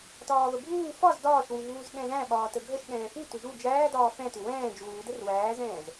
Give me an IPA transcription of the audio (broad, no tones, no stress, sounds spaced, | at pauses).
t ɒː v ə bʱ uː f ɒ z d ɒː ʃ w u v uː z ɠ ɛ̃ z æ̃ ɓ ɒː t ə ɡʱ ə ʃ ɠ ɛ̃ː f u t ʏ ʒ u d͡ʒ æː d ɒː f ɛ̃ t ʏ w ɛ̃ː d͡ʒ uː d ə r w æː z ɛ̃ː z